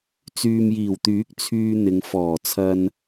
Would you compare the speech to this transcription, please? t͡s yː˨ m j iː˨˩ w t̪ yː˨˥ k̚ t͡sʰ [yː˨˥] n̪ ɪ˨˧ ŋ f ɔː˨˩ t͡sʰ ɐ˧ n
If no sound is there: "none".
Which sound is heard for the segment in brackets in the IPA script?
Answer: yː˧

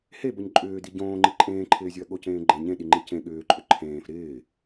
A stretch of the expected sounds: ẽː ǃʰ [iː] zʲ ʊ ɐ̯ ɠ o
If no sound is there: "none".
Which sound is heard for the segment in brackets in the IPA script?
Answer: ɪː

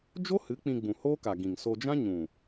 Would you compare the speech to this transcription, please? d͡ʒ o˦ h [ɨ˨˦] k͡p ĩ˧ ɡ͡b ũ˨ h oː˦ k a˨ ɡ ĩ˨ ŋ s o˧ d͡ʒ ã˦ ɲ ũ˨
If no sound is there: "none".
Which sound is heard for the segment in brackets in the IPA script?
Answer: ɨ˨˦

